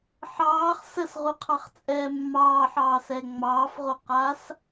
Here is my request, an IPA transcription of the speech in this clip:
ħ ɑː χ s ə s ʁ u qʰ ɑ χ t͡sʼ ɛː mː ɑː ħ ɑː s ɛ ŋ͡m ɑː f ʁ o q aː s

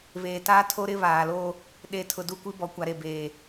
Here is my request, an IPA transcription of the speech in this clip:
β eː˨ t aː˦ tʰ o˦ ɾ ɪ˦ β aː˨ l oː˦ | ɗ e˨ tʰ ʊ˨ d u˦˨ kʷ i˦ b ɔ˨ kʷ a˨ ɾ e˨ b eː˨

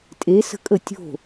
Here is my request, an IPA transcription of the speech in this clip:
tʼ e s ə̤ kʼ ə tʲ o̤

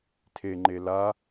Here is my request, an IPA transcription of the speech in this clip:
tʰ e ŋ͡ǃ e l a

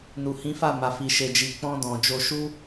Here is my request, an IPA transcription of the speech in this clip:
n u˨ h ĩ˨˦ f a˦˨ m a˨ f i˨ ʃ e˨ d͡ʒ i˨ k͡p ɔ̃˧ d ɔ̃˨ d͡ʒ o˧ ʃ u˦

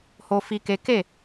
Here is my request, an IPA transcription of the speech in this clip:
h o˦ f i˦ k e˦ k e˦˨

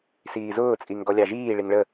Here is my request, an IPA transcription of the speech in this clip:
s iː z ʊː t͡sʼ i ŋ ɡ ɔ lʲ ɑ ʒ iː ɭ i ŋ ɭ ə

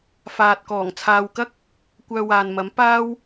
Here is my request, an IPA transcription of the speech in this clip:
f aː˨ t̚ k ɔː˨˩ ŋ t͡sʰ aː˨ w k ɐ˥ k̚ | kʷ œː˧ w aː˨ n m ɐ˨˥ m p aː˥ w

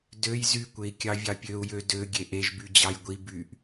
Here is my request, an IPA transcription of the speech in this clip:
d ø j z y kʷ e i̯ kʲ ɑ vʲ ɑ pʲ ø u̯ j ø d ø ɡʲ e ʔ e ʒ b y d͡ʑ ɑ j ɡʷ i b y ʔ

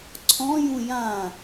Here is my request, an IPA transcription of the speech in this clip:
ǀʰ ɔ̃ j ũ j ã

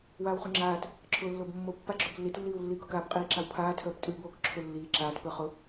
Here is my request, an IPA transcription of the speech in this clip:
w aː w χ ʉ ŋ͡ǁ aː t | ǁʰ ʊː lː o b mː o pː a ɡ͡ǁ ʊː b lː i t lː iː w lː iː k ʊ k aː p qʼ iː ǁ a w pʰ aː tʰ œː p tʼ ʉː b oː k ǁʰ ʊ lː iː ǁ aː t p ə˞ χ ʊ

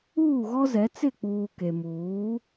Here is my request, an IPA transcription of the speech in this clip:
uː˦˨ ɣ ɔ˦ z ɛ˨˦ t͡s ɪ˦˨ k͡p uː˨ k e˨ m uː˨˦

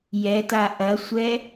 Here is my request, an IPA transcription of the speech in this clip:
j ɛ t a ʔ ɐ sʷ ɛ

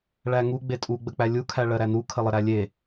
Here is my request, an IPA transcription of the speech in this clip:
ɭ æ ŋ u ɡ͡b e tʼ u ɡ͡b ə k͡p æ lʲ u kʰ æ ɭ ɜ ɾ æ n u kʰ ə lˠ ə ɾ æ lʲ e

